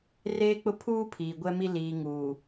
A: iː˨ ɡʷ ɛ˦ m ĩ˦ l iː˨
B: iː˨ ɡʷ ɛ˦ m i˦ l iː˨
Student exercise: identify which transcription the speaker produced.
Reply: B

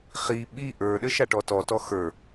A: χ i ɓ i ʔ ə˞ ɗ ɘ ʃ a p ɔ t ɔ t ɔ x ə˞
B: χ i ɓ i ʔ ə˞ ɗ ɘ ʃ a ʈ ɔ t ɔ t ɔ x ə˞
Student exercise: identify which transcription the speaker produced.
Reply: B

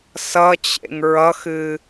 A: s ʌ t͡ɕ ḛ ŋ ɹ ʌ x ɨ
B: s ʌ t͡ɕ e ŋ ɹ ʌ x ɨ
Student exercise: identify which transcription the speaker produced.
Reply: A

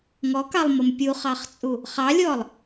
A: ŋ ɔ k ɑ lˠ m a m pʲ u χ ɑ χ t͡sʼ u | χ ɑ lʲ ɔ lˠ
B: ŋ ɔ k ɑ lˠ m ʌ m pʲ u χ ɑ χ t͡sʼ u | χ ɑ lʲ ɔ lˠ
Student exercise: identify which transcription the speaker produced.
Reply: B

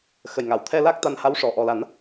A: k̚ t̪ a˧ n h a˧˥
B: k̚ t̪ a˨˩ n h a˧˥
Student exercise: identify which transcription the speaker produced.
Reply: A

